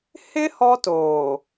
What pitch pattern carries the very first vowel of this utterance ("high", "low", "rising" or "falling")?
high